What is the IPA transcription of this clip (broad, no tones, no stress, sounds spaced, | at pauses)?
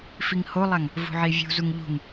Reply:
f i ŋ h o lˠ a ŋ | v ṳ ʕ i vʲ ṳ z u ŋ ʎ ṳ ŋ